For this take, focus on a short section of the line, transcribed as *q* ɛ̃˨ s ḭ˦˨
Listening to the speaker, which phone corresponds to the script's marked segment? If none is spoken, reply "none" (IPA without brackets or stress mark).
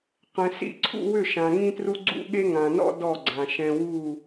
q